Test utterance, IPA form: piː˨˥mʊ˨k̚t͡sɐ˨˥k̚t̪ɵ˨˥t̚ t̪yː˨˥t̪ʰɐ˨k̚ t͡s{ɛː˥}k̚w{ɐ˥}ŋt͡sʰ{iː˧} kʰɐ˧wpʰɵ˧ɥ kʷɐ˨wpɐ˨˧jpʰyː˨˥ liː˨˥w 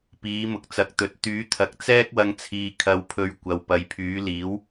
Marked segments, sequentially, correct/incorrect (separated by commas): correct, incorrect, incorrect